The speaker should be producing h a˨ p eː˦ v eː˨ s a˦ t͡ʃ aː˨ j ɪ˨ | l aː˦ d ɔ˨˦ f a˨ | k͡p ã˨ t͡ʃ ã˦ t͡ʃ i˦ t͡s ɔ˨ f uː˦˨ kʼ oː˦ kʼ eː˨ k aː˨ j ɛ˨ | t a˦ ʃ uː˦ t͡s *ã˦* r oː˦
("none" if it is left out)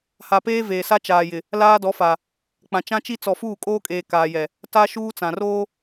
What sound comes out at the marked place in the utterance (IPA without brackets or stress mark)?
ã˨